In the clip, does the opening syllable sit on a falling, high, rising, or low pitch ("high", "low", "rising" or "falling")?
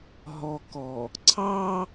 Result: low